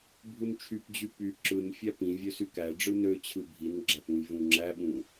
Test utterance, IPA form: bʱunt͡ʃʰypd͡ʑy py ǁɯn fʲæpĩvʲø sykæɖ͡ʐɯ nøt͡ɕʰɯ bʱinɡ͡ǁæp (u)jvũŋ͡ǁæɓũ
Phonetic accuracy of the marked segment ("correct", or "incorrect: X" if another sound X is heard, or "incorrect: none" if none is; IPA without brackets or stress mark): incorrect: ũ